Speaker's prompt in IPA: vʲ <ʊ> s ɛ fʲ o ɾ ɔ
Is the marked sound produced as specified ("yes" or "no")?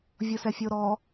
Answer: yes